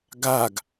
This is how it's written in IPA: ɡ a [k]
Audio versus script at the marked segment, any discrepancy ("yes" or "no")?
yes